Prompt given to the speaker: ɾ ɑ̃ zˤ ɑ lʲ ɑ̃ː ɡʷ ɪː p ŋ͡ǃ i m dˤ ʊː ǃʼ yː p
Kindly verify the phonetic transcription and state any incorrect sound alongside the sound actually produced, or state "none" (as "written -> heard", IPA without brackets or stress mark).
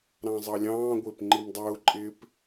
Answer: yː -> ɪː